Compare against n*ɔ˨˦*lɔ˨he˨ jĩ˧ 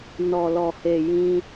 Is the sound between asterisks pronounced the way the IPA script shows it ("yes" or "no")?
no